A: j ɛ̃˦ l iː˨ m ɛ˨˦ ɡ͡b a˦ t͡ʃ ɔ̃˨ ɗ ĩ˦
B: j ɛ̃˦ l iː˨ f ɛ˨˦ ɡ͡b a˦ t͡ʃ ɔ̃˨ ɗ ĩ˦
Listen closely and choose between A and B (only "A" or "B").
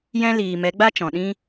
A